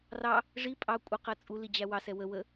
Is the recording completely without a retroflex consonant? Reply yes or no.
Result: no